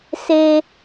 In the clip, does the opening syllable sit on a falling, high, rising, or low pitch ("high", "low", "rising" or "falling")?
high